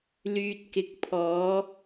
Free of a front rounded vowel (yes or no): no